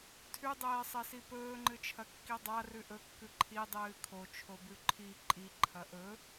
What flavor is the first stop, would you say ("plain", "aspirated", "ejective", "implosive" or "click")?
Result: aspirated